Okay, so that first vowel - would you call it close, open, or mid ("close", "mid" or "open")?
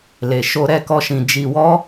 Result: mid